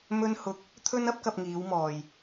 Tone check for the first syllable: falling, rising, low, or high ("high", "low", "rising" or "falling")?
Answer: high